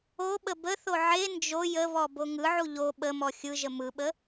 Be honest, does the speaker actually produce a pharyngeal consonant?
yes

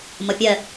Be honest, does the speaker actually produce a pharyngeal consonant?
no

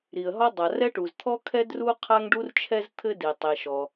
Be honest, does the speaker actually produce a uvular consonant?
yes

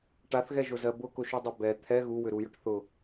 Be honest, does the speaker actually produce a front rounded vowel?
yes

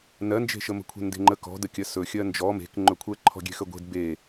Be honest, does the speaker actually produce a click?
yes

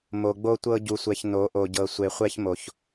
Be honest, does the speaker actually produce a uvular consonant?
yes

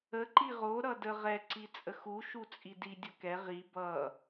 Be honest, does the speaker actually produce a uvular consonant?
yes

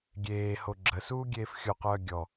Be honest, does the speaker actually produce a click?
yes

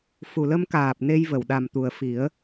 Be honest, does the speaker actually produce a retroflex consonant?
no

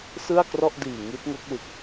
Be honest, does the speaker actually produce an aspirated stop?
no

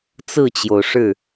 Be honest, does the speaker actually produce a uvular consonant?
no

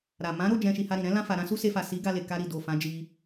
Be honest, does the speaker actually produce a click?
no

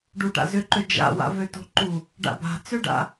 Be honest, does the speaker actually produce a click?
yes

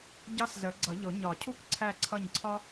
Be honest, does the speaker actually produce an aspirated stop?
yes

